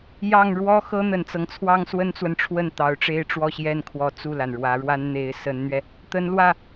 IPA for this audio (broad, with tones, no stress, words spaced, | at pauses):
jɑ˥˩ŋ ɻwɔ˥xɤ˥n̪ə˨˩nt͡sɤ˦ŋ t͡sʰwɑ˥ŋswə˥nt͡swə˨nʈ͡ʂʰwə˥˩n t̪ɑ˧˥ʊ̯ʈ͡ʂe˥ɪ̯ʈ͡ʂwɔ˥˧ ɕjɛ˥˩nkʰwɔ˧˥ t͡su˥˩la˩n ɻwä˧˥ɻwa˥n n̪e˧˥ɪ̯sə˧˥nn̪ɥɛ˧ | t̪ə˧˥nlwä˥˩